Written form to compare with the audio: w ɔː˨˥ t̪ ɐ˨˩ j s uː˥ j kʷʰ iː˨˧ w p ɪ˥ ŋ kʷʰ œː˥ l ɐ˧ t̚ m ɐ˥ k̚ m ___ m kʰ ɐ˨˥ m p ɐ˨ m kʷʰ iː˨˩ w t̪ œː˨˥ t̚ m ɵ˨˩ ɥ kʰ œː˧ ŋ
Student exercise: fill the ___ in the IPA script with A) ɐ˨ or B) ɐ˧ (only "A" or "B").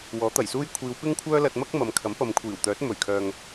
A